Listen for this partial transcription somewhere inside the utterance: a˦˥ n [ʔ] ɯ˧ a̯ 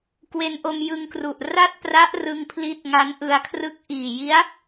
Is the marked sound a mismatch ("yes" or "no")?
no